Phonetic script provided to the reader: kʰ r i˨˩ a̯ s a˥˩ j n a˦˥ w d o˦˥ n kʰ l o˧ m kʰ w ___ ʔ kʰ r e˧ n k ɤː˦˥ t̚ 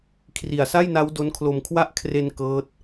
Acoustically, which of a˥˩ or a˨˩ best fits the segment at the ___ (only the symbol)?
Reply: a˥˩